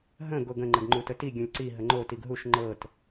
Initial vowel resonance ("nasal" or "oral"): nasal